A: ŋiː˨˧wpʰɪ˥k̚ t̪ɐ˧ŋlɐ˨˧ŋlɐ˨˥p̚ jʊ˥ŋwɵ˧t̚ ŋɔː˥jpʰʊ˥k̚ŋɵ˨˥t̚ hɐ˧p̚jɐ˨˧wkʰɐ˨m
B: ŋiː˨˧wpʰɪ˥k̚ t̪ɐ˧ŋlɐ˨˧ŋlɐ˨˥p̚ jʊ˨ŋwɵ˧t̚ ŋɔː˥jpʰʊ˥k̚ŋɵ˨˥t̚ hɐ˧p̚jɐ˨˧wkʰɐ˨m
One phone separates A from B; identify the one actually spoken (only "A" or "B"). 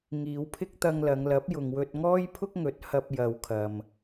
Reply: B